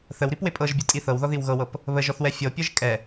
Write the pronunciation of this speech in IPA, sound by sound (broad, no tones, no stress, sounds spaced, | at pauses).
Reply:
θ ə w ɾ i p w e pʼ ɤ ʒ bʲ ɔ tʼ i θ ɤ w ð ɔ ð i w ɣ ɤ w ɤ p | β ə ʒ ɔ θ w ɛ fʲ ɤ pʲ ɤ ʒ kʼ ɛ